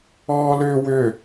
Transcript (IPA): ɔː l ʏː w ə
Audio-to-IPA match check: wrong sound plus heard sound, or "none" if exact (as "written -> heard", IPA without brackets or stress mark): ə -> ʏ